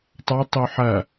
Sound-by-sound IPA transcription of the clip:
tˤ a tˤ o ħ ɐ

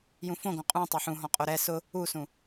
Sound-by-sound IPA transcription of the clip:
j ũ f õ ɡ õ qʼ ũ tˤ e ħ ũ ɦ ɔ̃ qʼ o ɾ ɛ s ʊ | u s ũ

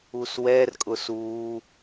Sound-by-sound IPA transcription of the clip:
u s w ɛ r kʼ ʊ s u

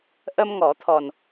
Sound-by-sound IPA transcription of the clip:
ʔ ə˧ m ŋ ɔ˨˩˦ t̪ʰ ɔ˨˩ n

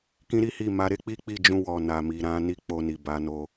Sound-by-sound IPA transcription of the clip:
k ĩ˧ ɾ i˦ h i˦˨ m a˨˦ ɾ e˦ k͡p i˦ k͡p i˦˨ d͡ʒ ũ˧ w ɔ˨ n a˨ m i˨ ɾ ã˨˦ n i˦ k͡p o˧ n i˨ b a˨˦ n o˧

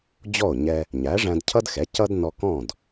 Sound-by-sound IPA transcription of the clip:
d͡ʑ ɔ˥˩ o̯ ɲ ɛ˧ | ɲ æ˩˥ ʐ æ̃˧ d cʰ ʌ˥ d x ɛ˩˥ c ʌ˥ d n ɔ˧ k ɔ̃˥˩ d

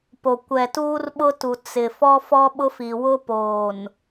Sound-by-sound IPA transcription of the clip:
p o˨ kʷ ɛ˨ t uː˦ r ɓ ʊ˦ t u˨ t͡s ɪ˨ f ɔ˦ f ɔ˦ ɓ ʊ˦ f i˨ w ʊ˦ p oː˨ n

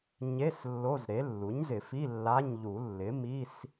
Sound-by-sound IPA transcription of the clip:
ɲ e˧˥˧ s lː o˧˥˧ z ɾ e˩˥ lː u˩˥ ɲ z ɪ˨˩˦ f i˧˥˧ lː a˧˥˧ ɲ ʎ u˨˩˦ lː ɪ˩˥ m i˧˥˧ s

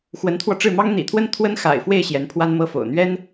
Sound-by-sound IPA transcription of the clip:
x w ə˧˥ n t̪ʰ w ɔ˧ ʈ͡ʂ ɻ̩˥˩ m ɑ˥ ŋ n̪ ḭ˨˩ t̪ʰ w ə˥ n t̪ʰ w ə˥ n x a̰˨˩ ɪ̯ f w e˥˩ ɪ̯ ɕ j ɛ˧˥ n pʰ w a˥ n m ɤ˥ f o̰˨˩ ʊ̯ n̪ ɥ ɛ˥ n

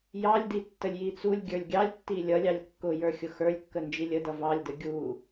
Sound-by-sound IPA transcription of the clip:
j ɑ lʲ d i tː ə lʲ j i t͡s u lʲ ɡʲ ə˞ lʲ ɡʲ ɑ lʲ tː i lʲ ʌ lʲ ɑ lʲ kː ʊ j ə˞ xʲ ʊ x ə˞ lʲ kː ə n d͡ʒ i lʲ ə d ʌ v ɑ lʲ d ə ɡʲ u

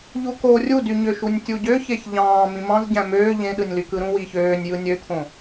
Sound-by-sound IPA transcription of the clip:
ʎ u k o rʲ u d y ɲ ø ʃ u nʲ tʲ u ɟ ø ç e ç ʎ ɑ̃ː m ĩ m ɑ̃ z ɟ æ̃ m øː ʎ ẽ ɗ ɯ nʲ l y k ɯ ɾ ũ w iː ç øː nʲ j ɯ nʲ ø t̪ʰ õ

